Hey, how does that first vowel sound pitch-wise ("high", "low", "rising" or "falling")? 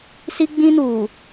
high